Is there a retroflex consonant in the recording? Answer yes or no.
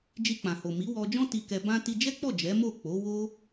no